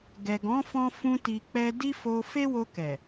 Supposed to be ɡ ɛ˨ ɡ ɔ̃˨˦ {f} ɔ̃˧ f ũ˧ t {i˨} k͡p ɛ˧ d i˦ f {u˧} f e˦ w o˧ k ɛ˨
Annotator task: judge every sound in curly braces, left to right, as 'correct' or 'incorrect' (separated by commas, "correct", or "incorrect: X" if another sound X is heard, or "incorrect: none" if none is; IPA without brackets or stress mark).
correct, correct, incorrect: o˧